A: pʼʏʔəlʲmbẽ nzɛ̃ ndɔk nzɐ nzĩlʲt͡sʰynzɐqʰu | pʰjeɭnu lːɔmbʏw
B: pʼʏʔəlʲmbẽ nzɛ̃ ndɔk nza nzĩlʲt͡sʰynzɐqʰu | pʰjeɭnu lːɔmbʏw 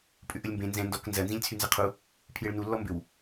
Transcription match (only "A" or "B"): A